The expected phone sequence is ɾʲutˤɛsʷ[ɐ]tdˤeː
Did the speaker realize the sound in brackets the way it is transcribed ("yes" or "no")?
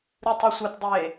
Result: yes